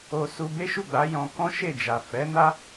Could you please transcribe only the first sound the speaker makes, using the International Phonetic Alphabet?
o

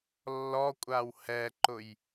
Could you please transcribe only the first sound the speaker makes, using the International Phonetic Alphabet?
lː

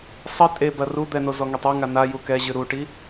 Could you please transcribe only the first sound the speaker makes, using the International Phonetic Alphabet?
sˤ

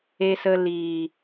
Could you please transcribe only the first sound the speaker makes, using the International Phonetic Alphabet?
e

